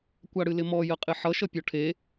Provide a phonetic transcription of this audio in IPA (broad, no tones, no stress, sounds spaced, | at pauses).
kʷ a ɽ ɨ l ɪ m ɔ j ə qʼ ɪ ħ ʌ ʃ ʌ pʲ ɔ ʈʰ e